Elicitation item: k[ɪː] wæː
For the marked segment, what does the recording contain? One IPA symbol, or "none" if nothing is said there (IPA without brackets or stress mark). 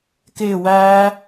ɪː